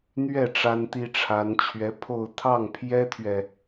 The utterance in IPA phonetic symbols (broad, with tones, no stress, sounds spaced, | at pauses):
n̪ ɥ ɛ˥˩ ʈ͡ʂ a˥ n t̪ i˥ ʈ͡ʂʰ a˧˥ n t͡ɕʰ ɥ ɛ˧˥ pʰ o˥˧ ʊ̯ t̪ʰ ɑ˥˩ ŋ pʰ j ɛ˥ t̪ʰ ɥ ɛ˨